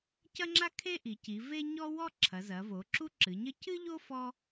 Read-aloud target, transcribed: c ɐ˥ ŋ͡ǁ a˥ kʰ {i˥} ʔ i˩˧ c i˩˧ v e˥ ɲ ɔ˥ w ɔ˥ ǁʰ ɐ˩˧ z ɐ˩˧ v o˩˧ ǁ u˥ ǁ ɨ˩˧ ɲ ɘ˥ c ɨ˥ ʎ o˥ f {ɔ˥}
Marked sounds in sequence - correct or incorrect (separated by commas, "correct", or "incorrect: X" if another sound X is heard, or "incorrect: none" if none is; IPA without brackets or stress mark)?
incorrect: e˥, correct